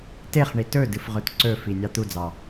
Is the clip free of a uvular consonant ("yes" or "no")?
no